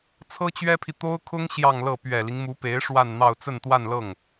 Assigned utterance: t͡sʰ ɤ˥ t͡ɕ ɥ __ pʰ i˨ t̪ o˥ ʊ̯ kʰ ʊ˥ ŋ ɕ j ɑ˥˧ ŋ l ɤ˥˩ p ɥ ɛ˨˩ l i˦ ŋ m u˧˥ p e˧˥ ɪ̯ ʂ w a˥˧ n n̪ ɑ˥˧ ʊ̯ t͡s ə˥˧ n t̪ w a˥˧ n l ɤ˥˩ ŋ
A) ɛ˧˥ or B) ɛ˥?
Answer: B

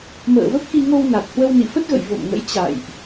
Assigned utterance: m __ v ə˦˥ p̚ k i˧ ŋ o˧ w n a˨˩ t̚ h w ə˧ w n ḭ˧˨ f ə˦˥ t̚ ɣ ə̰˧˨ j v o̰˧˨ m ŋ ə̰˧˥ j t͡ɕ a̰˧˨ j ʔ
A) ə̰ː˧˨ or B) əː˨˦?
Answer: A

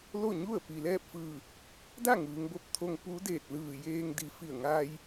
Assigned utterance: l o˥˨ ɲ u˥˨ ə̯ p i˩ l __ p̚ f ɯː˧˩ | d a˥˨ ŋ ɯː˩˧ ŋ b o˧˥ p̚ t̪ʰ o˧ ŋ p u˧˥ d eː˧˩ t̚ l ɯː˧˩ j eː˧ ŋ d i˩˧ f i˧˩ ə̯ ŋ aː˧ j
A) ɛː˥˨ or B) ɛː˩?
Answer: A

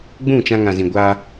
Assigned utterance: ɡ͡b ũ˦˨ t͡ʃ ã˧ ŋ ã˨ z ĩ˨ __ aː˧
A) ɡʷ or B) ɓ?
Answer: A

